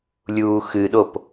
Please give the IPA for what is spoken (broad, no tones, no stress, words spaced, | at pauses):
lʲuːxɨɗop